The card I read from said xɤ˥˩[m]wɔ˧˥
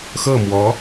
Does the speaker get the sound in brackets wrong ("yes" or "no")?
no